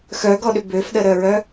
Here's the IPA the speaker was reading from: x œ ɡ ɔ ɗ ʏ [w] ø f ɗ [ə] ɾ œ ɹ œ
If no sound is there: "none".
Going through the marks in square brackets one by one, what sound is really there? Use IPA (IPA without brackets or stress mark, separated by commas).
b, ə